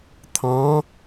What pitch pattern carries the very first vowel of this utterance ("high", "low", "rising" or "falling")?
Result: rising